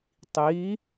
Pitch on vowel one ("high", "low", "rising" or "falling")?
rising